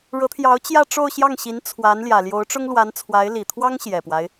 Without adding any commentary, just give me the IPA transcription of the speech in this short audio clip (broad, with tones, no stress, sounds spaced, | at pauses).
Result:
ɻ ɤ˧˥ t̪ʰ j ɑ˧˥ ʊ̯ t͡ɕ j ä˥˧ ʈ͡ʂ o˥˧ ʊ̯ ɕ j ɑ˥˩ ŋ ɕ i˧˥ n t͡sʰ w a˧˥ n l j ä˨˩ l j o˧˥ ʊ̯ ʈ͡ʂ ʊ˥ ŋ l w a˧˥ n t͡sʰ w a˧˥ ɪ̯ l i˨˩ t̪ʰ w ɑ˥ ŋ ɕ j ɛ˨˩ p w a˦ ɪ̯